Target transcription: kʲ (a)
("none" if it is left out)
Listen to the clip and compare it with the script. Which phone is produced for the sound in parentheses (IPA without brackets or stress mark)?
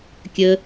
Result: ə